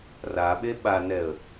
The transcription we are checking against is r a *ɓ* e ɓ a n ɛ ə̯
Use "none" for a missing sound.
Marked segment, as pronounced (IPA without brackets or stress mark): ɓ